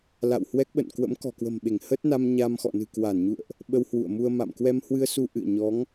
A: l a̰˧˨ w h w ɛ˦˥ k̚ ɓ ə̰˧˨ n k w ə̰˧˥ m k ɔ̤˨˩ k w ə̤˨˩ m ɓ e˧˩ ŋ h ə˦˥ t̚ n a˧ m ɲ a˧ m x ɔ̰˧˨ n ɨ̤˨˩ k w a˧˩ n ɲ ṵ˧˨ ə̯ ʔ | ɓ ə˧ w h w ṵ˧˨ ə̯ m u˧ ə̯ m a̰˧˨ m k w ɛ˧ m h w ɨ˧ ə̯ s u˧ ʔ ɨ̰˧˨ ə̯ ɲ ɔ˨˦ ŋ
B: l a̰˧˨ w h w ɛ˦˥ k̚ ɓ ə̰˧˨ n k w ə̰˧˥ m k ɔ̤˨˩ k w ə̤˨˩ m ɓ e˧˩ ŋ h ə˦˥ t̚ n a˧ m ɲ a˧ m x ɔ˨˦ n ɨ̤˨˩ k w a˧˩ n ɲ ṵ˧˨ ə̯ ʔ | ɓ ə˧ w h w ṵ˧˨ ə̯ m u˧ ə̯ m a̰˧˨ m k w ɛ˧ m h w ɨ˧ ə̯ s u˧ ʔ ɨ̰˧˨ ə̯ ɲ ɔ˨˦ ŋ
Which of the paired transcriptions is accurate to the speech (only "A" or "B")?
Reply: A